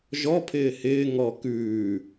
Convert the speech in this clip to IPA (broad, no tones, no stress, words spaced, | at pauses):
ʒɔpʰɪː hɪː ŋɔ kʉː